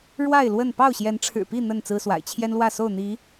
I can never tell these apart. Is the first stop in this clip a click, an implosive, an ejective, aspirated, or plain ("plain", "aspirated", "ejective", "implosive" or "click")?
plain